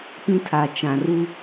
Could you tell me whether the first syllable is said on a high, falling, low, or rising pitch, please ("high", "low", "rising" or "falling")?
high